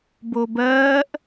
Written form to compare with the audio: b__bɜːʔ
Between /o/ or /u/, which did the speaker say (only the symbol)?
o